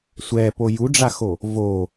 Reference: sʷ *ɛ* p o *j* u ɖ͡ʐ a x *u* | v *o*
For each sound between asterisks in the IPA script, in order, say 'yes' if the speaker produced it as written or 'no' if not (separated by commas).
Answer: yes, yes, no, yes